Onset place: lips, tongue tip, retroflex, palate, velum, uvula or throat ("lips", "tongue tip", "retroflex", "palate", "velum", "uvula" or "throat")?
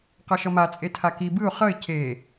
uvula